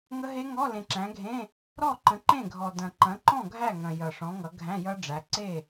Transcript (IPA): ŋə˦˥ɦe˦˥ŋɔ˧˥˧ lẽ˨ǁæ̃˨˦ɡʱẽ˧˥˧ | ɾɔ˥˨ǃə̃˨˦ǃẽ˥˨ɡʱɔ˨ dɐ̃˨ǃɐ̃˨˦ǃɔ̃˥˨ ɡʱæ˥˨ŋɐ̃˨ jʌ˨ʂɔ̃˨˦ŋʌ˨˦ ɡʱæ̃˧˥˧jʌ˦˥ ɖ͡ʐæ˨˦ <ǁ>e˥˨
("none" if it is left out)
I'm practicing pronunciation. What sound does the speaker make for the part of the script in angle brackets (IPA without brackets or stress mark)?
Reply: ǀ